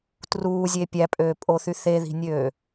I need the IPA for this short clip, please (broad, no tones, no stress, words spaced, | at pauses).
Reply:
truːzʲe pʲæpʼøːpʼoθy θeði̤nʲøː